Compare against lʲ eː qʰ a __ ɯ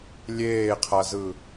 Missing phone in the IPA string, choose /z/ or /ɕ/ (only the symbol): z